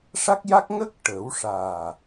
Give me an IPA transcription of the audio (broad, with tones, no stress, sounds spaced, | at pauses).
ʂ a˦˥ k̚ j a˦˥ k̚ ŋ ə˦˥ k̚ ʈ ə˨˩˦ w ʂ aː˨˩